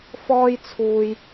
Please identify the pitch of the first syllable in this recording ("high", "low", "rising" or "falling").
high